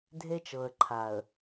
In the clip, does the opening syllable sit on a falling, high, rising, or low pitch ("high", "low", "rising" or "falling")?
high